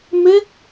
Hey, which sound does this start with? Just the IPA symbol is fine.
m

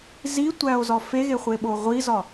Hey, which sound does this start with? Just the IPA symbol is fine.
z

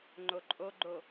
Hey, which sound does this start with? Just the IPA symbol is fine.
ŋ͡ǃ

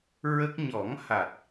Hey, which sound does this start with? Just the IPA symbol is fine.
ɹ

